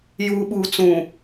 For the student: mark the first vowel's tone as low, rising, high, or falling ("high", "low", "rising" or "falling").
low